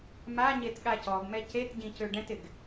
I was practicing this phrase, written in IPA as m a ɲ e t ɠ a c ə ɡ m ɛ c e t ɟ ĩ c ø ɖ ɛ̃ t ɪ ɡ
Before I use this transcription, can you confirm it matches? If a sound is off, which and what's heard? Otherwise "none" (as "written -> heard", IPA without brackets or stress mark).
ə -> ɔ